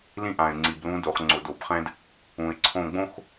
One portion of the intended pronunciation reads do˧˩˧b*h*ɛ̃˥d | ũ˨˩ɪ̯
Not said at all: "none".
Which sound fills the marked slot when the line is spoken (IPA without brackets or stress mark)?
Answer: χ